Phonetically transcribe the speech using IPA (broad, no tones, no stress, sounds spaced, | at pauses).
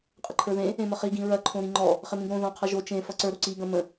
qʼ ɐ ǃʰ ə˞ ð ẽ | ẽ m ə χ i ɡ ĩ ɹ ɐ ǃʰ õ ɾ ĩ ŋ͡ǃ ɔ | χ ɪ m ĩ ɡ ɾ õ ð ɔ̃ qʰ ʌ ʒ o t͡ʃ ẽ f ʌ ǀ ə˞ ɾ o ǀ i ɡ ɐ̃ m ə̃